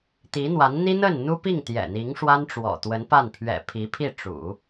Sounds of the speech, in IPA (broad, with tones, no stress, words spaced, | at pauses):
t̪i˧˥n̪wa˧˥n n̪i˥ n̪ə˥˩n n̪u˥pi˥˩ŋ t̪jɛ̰˨˩n̪i˧˥ŋʂwa˥n ʈ͡ʂwɔ̰˨˩t̪wə˧˥npa˥˩n pʰɥɛ̰˨˩ pʰi˧˥pʰi˥˩ ʈ͡ʂṵ˨˩˦